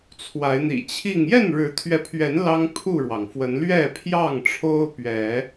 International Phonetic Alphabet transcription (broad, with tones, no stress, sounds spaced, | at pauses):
t͡sʰ w a˨˦ ɪ̯ n̪ ḭ˨˩ t͡ɕʰ i˥˨ ŋ j ɛ˥˨ n ɻ ɻ̩˨˦ t̪ʰ ɥ ɛ˨˦ pʰ ɥ ɛ˨˦ n l ɑ˦ ŋ pʰ u˥˨ ɻ w ɑ˩ ŋ f w ə˨˦ n l ɥ ɛ˥˨ pʰ j ɑ˥˨ ŋ ʈ͡ʂʰ o˦ ʊ̯ p ɥ ɛ˨˦